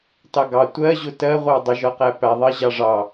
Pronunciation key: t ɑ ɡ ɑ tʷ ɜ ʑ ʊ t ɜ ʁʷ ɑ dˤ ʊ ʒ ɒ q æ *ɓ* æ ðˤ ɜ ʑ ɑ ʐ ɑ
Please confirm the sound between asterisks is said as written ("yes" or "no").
no